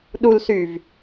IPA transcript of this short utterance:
ɗulsyv

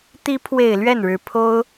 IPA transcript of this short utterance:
t̪i˧˥pʰwe˨˩ɪ̯ lɥɛ˥˩nɻɻ̩˧˥ pʰo˥ʊ̯

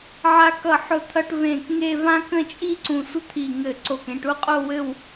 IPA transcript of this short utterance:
ʕa˧kʌ˧˩ħʊ˧˩t̪ʰʌ˧ʈ vẽ˧˩kŋe˥˧ vã˥ kə̃˥˧t͡ʃʼi˥ ǀũ˧˩sʷə˥t̪ʰi˧˩ ŋɘ˧˩ǀo˧˩kẽ˧ʈ u˥˧qʼo˥˧wɘ˥˧w

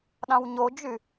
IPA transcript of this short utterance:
ɗɑ̃wɲod͡ʒy

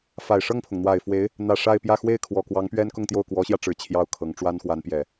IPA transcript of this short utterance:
fa˨˩ɪ̯ʂɤ˥˩ŋpʰʊ˩ŋ n̪wa˨˩ɪ̯ fwe˧˥ɪ̯ | n̪ä˨˩ ʂa˥˧ɪ̯pjä˥˧ xwe˥˩ɪ̯kʰwɔ˨˩ kwɑ˧˥ŋpɥɛ˥n kʊ˥˧ŋt̪jo˥˩ʊ̯ kwɔ˧˥ɕjä˧ ʈ͡ʂɻ̩˨˩ t͡ɕʰjɑ˥˩ʊ̯kʰɤ˧˥ŋ ʈ͡ʂwa˥n xwa˧˥npjɛ˨˩˦

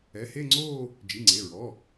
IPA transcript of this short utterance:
ɛ˩˧˩he˥˧ŋ͡ǀoː˥˧ | d͡ʒi˩˧˩ŋ͡ǀe˩˧˩ɹɔ˩˧˩

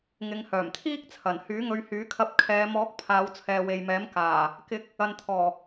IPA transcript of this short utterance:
ŋɪ˨˧ŋhœː˨˩mt̪ʰiː˥k̚t͡sʰɐ˨˩n hyː˨˥ŋɵ˨˧ɥhyː˨˥kʰɐ˧p̚ kʰɛː˨˧ mɔː˨˥k̚ pʰaː˨˧wt͡sʰɛː˨we˨jmɛː˨˥m kaː˨˩ | kɪ˨˥k̚ | ɐ˨nt̪ʰɔː˨˩

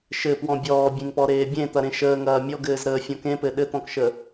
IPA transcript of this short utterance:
ʃɘpwɔ̃ bʲɔːbʲẽŋpɔɾeː bʲẽt̪ɐɾẽ ʃəːŋɐː mʲɔɡɘːzɾəːfʲɔ̃ kẽpɘ ɗɘt̪ɔ̃kʃə

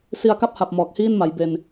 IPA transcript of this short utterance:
si˧a̯ka˥˩p̚ha˨˩p̚ mɔː˨˩k̚hiː˥˩nma˩˦j be˧n

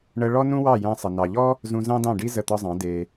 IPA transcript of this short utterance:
ɳə˧ ɭɔ˥nũ˥wɑ˥˩ jæ̃˧sˤə˩ nɑ˩ʎɔ˥ | zũ˧zɑ̃˥dɑ̃˥˩ɖi˥ zə˥˩t̪ɒ˥zˤɑ̃˩˥ de˩

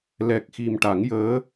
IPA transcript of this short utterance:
lɛ˨˩k̚ xi˨˩mʈa˨˩˦ŋjəː˧˥

